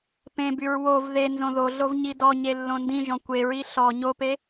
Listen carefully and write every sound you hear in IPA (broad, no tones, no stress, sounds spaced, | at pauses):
p ẽ b y ɹ w o v ð e n z õ ð o ɮ o v ɲ i d ɔ ɲ e lː õ n d ĩ ʒ ɔ̃ kʷ e ɹ i ɬ ɔ ɲ o p e